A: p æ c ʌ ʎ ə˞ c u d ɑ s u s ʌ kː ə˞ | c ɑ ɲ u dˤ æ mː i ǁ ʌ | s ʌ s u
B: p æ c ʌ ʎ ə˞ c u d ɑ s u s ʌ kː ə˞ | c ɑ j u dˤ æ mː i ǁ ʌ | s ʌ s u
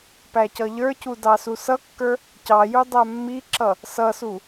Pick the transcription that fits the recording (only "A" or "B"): B